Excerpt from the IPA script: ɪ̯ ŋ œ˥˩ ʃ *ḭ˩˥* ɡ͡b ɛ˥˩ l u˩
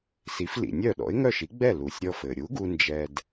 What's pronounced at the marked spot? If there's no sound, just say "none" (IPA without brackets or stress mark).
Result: i˩˥